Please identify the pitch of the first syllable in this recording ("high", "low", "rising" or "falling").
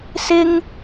high